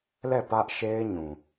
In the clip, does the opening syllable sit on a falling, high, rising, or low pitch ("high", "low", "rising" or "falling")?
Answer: falling